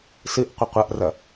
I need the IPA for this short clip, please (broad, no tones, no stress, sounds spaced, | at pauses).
s ɨ ʔ qʷ ɐ qʷ ɐ ʔ r ɐ